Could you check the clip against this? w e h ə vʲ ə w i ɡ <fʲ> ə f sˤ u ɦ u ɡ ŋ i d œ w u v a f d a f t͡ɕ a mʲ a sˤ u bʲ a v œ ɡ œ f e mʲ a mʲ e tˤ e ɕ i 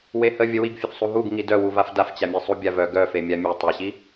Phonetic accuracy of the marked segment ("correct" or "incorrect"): correct